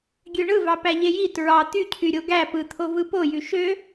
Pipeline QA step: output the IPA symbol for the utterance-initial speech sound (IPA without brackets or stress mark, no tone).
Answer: ɡʲ